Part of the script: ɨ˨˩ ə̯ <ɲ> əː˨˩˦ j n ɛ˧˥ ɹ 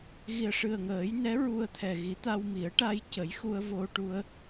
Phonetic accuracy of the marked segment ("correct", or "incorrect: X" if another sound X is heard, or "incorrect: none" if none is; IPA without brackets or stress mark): incorrect: ŋ